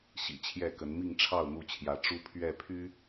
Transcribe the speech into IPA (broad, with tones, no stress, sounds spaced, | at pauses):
ɕ ḭ˨˩ t͡ɕʰ j ɛ˥˨ k ə˨˦ n m i˥˨ ŋ ʈ͡ʂʰ ɑ˥˨ ʊ̯ n̪ u˥˨ t͡ɕʰ j ä˨˦ ʈ͡ʂ u˦ pʰ ɥ ɛ˥˨ pʰ y˦